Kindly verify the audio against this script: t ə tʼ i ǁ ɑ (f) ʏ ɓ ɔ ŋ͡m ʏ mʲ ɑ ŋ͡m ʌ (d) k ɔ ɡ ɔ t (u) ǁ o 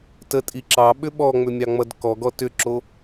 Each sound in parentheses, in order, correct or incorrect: incorrect: ɓ, correct, incorrect: ʏ

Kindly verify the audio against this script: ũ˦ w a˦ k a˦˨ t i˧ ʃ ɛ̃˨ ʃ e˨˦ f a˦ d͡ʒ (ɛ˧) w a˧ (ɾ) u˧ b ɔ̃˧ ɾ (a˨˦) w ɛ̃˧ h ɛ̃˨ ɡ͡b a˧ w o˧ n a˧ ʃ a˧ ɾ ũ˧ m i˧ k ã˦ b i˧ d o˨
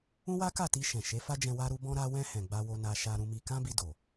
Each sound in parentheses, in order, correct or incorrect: incorrect: ɛ̃˧, correct, incorrect: a˧

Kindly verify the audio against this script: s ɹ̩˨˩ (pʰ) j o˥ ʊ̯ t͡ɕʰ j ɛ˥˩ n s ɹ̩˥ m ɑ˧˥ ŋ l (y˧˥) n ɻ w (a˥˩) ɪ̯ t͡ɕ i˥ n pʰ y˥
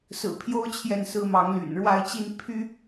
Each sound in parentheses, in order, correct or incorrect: correct, incorrect: y̰˨˩, correct

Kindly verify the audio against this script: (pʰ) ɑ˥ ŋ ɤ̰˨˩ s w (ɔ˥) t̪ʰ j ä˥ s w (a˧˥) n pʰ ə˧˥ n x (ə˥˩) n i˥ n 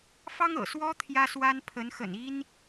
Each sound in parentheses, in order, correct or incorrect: incorrect: f, correct, incorrect: a˥, incorrect: ə̰˨˩

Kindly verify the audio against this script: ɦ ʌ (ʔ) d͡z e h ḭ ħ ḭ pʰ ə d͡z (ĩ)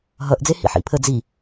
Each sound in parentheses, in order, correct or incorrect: correct, incorrect: i

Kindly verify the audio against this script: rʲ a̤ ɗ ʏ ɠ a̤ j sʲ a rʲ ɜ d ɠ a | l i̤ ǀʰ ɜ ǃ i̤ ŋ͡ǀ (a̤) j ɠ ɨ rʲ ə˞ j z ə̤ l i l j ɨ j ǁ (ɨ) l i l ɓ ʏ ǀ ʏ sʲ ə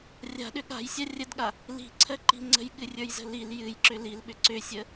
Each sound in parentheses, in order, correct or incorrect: incorrect: ə̤, incorrect: ʏ

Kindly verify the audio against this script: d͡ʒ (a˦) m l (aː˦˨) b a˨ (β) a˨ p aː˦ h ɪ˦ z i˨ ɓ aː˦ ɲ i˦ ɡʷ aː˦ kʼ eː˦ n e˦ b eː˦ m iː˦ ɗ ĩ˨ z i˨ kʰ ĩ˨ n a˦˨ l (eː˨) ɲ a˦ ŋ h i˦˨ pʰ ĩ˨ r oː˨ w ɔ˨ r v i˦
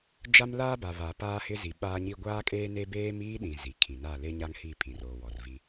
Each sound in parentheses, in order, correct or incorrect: correct, incorrect: aː˦, correct, incorrect: eː˦

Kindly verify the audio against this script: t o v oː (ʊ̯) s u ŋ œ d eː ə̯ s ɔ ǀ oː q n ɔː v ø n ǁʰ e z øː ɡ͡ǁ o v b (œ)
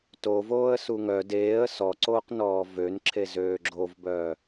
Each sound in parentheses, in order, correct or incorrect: incorrect: ə̯, correct

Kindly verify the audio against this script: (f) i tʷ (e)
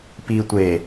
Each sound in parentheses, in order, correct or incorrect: incorrect: p, correct

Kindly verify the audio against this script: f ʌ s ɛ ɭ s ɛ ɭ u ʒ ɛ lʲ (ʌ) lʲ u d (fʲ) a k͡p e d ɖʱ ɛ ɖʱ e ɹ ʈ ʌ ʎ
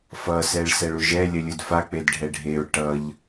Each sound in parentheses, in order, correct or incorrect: correct, incorrect: f

